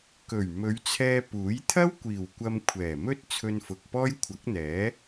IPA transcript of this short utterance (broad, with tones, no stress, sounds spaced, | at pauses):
k ɵ˨˩ ɥ m ɵ˨˧ ɥ t͡sʰ ɛː˧ p uː˨˥ j t̪ʰ ɐ˥ w kʷ iː˨˩ w kʷ ɐ˧ m kʷʰ ɛː˨˩ m ɵ˥ t̚ t͡sʰ ɵ˧ n f ʊ˨ k̚ p ɔː˥ j kʷʰ ɐ˨˥ k̚ n̪ ɛː˨˥